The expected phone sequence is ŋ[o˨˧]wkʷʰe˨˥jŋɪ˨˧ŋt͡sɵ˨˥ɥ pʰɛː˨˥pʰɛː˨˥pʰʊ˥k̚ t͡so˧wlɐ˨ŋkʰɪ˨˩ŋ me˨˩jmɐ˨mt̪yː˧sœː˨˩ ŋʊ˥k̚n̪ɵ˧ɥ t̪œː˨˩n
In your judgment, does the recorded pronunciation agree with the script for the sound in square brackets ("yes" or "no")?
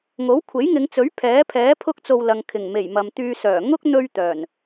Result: no